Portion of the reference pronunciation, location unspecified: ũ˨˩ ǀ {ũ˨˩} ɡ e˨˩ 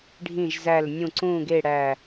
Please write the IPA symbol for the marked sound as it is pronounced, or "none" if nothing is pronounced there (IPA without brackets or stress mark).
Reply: ũ˨˩